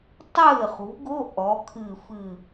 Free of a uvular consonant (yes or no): no